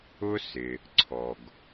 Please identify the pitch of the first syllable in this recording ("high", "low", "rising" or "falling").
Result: high